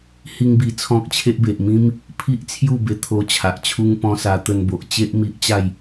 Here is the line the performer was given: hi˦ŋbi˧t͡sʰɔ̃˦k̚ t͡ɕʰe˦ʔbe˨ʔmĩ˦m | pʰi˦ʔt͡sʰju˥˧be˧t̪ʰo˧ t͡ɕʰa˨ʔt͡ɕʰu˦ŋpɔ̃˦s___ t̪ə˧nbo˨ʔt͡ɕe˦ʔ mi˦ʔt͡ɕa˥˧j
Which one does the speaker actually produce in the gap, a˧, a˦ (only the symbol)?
a˧